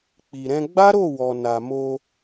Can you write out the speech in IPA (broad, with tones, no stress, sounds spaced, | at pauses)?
k͡p i˨ ɾ ɛ̃˧ ɡ͡b a˦ ɾ o˦˨ w ɔ˨ n a˨ m o˧